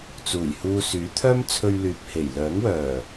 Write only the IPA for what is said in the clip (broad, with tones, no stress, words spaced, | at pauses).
t͡suː˨˩jhuː˧syː˨˥ t̪ʰœː˥mt͡sʰɵ˧ɥlyː˨p̚ he˨˩jlœː˨˥ŋwœː˨˩